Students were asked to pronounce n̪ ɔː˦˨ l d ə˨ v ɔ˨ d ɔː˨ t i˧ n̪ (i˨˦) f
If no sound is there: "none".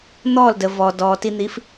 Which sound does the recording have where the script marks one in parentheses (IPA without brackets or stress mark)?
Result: i˨˦